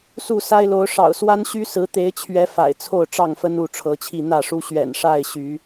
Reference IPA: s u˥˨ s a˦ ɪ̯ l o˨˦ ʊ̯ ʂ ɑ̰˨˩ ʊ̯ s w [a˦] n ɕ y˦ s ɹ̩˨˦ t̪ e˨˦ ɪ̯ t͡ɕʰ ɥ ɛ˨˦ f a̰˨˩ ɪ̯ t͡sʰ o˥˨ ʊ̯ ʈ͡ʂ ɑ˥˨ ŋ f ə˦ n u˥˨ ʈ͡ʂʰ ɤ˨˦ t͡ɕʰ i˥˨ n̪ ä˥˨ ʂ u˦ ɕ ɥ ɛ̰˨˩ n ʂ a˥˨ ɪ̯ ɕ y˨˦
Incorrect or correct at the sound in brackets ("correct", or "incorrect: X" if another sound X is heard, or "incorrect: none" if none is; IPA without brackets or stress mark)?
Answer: correct